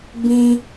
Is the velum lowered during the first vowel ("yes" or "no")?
yes